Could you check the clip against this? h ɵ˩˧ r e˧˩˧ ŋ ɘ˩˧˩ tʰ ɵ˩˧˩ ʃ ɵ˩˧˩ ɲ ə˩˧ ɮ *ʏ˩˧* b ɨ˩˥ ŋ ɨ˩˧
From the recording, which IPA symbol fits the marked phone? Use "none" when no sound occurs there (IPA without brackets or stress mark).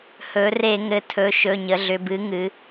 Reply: ʏ˩˧